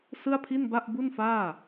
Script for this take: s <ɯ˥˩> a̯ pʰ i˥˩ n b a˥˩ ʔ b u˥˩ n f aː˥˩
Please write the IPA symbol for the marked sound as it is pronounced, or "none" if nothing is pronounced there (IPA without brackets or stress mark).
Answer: ɯ˥˩